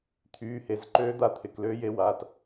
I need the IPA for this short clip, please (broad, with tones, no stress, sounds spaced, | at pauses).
t̪ʰ yː˩˧˩ h e˩˧˩ z ǃ øː˧˥ d̪ a˧˥ t̪ʰ ɪ˩˧˩ k l øː˧˥ j e˧˥ w aː˩˧˩ t